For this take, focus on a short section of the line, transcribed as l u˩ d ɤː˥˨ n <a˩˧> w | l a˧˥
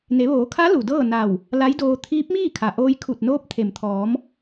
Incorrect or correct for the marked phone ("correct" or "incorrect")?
incorrect